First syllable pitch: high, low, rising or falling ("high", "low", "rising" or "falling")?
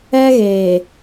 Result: high